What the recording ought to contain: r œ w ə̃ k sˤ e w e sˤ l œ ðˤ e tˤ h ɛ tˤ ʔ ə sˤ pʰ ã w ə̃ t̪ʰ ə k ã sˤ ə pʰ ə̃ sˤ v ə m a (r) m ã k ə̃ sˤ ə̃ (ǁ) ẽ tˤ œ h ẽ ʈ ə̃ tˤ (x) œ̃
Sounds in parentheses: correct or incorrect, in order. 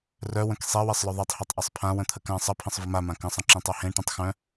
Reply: incorrect: none, correct, correct

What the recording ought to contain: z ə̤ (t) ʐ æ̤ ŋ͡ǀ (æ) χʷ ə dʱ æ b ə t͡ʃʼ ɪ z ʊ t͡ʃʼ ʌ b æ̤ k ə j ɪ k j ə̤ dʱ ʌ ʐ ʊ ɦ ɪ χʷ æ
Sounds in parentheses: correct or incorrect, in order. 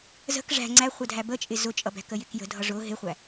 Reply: incorrect: k, correct

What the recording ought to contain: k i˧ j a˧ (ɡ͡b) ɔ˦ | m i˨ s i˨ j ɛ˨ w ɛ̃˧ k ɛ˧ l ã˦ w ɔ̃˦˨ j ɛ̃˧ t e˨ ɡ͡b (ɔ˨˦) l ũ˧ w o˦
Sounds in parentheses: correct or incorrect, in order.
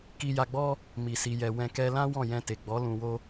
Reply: correct, correct

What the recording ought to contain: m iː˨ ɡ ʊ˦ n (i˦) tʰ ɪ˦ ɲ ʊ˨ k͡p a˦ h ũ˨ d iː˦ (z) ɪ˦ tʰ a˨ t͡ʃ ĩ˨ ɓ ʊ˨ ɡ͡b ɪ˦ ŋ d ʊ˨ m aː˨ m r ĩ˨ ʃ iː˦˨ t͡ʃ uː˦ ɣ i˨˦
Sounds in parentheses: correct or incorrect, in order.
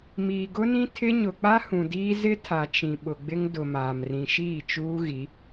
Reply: incorrect: ĩ˦, correct

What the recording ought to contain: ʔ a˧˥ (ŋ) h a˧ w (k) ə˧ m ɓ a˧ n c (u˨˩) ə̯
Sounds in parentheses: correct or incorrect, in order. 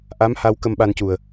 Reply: incorrect: m, correct, correct

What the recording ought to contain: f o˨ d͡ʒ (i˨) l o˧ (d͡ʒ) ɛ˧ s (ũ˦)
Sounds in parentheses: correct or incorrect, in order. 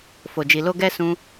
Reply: correct, incorrect: ɡ, correct

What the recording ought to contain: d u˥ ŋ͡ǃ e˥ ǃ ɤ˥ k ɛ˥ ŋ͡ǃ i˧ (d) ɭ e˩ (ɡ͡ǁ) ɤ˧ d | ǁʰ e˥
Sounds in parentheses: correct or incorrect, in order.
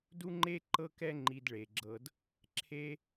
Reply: correct, correct

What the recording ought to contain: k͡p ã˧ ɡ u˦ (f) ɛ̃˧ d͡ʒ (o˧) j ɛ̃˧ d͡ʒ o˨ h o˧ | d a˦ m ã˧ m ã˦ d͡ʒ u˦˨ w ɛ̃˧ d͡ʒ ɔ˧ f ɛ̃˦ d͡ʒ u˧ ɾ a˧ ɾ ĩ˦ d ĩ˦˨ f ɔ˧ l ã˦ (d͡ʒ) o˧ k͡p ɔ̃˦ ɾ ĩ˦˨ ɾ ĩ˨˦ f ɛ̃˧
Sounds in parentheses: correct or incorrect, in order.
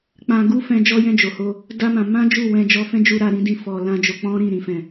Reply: correct, incorrect: ɔ˧, correct

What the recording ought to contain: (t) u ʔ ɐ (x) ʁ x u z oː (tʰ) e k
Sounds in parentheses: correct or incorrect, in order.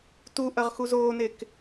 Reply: correct, incorrect: none, incorrect: n

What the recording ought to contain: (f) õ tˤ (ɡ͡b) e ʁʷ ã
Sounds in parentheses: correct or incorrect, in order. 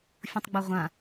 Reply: incorrect: fʲ, correct

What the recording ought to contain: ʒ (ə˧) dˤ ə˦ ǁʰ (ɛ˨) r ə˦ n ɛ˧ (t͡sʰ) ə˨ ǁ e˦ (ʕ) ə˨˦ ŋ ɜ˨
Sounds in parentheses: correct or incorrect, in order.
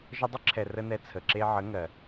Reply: correct, correct, correct, correct

